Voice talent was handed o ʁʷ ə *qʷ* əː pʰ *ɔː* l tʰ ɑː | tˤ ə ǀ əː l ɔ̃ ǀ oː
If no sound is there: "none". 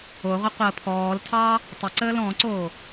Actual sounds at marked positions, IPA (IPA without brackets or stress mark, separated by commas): qʷ, ɔː